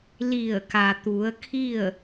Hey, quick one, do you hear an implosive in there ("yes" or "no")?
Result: no